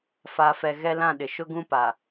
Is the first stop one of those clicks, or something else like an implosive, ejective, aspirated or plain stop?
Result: implosive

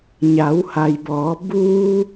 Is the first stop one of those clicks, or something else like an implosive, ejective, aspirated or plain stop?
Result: plain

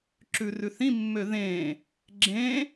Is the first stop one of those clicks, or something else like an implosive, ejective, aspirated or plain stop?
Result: click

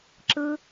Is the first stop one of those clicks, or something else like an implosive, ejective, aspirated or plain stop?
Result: click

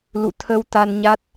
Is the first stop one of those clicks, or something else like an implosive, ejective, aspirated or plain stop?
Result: aspirated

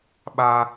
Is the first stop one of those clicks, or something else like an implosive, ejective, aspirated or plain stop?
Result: implosive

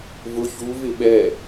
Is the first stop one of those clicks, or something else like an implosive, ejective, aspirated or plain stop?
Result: implosive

